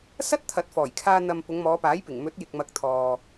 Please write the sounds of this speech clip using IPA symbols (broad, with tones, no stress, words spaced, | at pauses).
sɐ˥t̚t̪ʰɐ˨˥t̚fɔː˨˩jkʰaː˧ n̪ɐ˨m pʊ˨˧ŋmɔː˨˧paː˨˥jpɪ˨˩ŋ mɵ˨˥t̚jɪ˨k̚ mɐ˨˥k̚t̪ʰɔː˨